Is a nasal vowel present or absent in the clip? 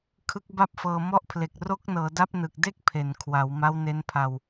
absent